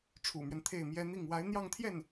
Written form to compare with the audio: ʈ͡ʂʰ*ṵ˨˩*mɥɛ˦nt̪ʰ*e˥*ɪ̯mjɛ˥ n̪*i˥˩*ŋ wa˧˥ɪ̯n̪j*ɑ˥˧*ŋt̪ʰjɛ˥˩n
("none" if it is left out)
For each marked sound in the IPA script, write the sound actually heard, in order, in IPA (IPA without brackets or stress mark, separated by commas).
ṵ˨˩, e˥˩, i˥˩, ɑ˥˧